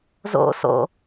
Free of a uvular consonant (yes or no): yes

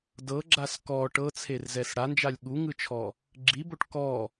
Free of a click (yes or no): no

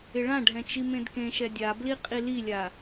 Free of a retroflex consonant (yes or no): no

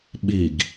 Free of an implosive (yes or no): no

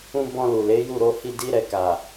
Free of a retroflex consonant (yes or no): yes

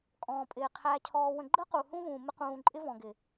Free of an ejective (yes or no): no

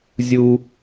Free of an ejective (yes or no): yes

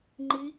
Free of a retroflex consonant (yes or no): yes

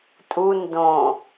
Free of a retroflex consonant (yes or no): yes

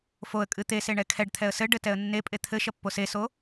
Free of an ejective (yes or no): no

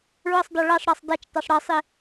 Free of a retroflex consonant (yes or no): no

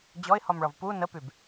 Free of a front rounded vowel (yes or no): no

